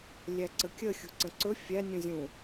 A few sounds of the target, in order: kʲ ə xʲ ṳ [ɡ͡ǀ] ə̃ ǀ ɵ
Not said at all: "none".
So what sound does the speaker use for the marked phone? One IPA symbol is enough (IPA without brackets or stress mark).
ǀ